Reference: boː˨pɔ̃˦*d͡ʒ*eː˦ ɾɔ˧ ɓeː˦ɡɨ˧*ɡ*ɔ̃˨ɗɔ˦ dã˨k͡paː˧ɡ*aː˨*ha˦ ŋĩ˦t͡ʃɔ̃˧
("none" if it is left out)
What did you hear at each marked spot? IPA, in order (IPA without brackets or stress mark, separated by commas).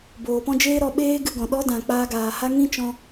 d͡ʒ, ɡ, aː˨